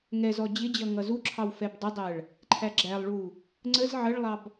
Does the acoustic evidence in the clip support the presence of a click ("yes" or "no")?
yes